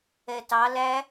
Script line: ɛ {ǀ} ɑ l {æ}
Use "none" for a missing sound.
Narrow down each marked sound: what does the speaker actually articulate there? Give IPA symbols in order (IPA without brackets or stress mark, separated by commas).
t, æ